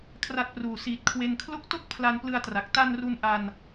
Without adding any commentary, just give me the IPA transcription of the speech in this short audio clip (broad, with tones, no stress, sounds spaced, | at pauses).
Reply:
kʰ r a˦˥ t̚ p r uː˨˩ s iː˨˩ t̚ kʰ w e˧ n kʰ l o˦˥ k̚ t o˥˩ k̚ pʰ l a˧ n p l ɯ˧ a̯ t r a˨˩ k̚ t a˧ n r u˧ n ʔ a˧ n